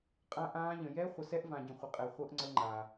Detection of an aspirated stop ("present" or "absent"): absent